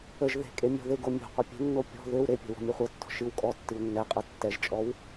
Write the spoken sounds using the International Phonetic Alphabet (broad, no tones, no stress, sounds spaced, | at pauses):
ə ʒ ð e̤ kʼ e mʲ ɔ̤ ð e ɡ o mʲ o̤ qʷ ə pʲ e̤ nː o pʲ ɔ̤ ð ø w ɾ e pʲ ɛ̤ w ɔ̤ mʲ e χʷ ɤ tː ɔ̤ ʃ ɨ w kʼ ɔ tː ɨ w nː ɛ qʼ ɤ tː ɛ ʒ t͡ʃʼ ɔ w